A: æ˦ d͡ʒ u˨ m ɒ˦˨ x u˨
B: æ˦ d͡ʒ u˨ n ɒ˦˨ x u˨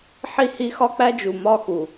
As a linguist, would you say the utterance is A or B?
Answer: A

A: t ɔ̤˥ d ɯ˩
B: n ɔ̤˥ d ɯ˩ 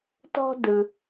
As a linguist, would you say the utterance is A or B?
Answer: A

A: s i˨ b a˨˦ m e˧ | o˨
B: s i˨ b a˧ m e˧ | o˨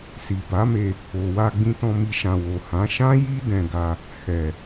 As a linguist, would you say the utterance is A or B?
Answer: A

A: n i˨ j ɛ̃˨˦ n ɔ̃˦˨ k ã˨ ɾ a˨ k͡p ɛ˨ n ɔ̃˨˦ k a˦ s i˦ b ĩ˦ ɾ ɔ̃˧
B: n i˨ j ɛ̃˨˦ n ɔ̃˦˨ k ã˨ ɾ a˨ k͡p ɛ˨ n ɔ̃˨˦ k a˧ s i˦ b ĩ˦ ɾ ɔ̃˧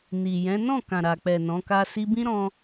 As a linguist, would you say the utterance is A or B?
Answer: A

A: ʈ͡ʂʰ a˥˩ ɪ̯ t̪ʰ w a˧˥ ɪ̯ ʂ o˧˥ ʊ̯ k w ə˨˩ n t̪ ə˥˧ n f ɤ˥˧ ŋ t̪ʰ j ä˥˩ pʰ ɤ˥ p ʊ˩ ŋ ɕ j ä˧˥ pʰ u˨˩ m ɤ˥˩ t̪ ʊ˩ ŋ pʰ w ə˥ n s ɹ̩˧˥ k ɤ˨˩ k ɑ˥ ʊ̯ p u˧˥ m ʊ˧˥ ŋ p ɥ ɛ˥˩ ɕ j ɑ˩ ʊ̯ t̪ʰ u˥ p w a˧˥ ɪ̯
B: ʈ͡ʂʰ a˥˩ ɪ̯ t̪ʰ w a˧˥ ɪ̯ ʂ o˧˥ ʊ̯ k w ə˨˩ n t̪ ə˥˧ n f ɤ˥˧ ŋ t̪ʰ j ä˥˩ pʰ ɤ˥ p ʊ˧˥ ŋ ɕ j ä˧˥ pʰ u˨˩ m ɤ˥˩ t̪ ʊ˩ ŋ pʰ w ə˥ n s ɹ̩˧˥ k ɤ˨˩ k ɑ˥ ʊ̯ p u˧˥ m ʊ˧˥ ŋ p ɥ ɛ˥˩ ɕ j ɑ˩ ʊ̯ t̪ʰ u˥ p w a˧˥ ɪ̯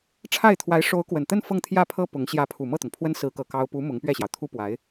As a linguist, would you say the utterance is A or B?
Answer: B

